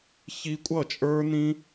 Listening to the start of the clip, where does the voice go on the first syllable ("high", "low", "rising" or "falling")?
high